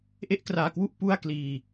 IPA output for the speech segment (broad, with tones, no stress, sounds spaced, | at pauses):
ʔ e˥˩ ʔ k r aː˧ k w u˥˩ ʔ p u˥˩ a̯ k l iː˧